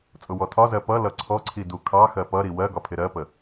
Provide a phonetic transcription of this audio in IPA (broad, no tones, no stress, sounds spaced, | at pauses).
t͡sʼ ʊ w ɔ tʰ ɒ z ɜ p ʌ l ʌ ǀʰ ɔ ǀʰ i d u kʰ ɑ x ɜ p ʌ ɾ i w ɜ ɡ ɒ pʰ ɪ ɾ ɜ p ə